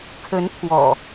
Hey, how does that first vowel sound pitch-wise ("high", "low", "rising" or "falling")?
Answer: rising